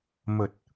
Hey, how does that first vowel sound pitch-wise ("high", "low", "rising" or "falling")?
low